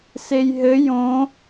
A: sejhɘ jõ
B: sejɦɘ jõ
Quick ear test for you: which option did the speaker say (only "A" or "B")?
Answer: B